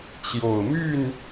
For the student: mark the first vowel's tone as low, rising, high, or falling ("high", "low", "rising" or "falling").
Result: low